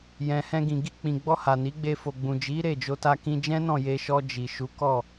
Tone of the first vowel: low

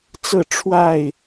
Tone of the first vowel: falling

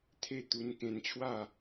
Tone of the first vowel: falling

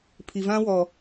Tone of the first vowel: low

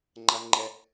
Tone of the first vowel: high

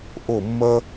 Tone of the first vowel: falling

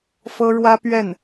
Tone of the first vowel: high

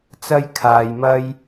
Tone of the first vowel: high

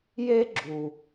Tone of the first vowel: high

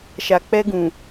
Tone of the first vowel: low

